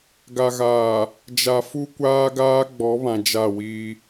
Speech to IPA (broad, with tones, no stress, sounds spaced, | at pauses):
ɡ a˨ ɣ aː˨ | d͡ʒ a˨ f u˦ kʷ aː˦ ɡ aː˦ ɡ͡b ɔ˨˦ β ã˨ d͡ʒ a˦˨ w iː˦